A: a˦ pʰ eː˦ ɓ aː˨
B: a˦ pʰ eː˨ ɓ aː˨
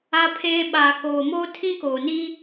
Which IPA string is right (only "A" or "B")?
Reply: A